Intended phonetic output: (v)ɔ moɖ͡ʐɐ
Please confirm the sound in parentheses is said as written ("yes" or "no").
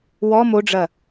no